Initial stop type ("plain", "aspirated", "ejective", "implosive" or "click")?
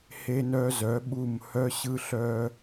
implosive